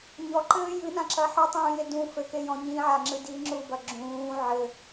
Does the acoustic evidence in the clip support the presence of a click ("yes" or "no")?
yes